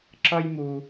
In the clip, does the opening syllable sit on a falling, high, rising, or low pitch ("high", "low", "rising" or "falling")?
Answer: high